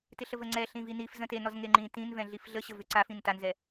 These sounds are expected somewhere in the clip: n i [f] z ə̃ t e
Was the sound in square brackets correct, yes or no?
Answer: yes